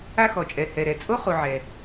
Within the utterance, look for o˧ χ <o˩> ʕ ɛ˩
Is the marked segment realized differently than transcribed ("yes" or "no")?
yes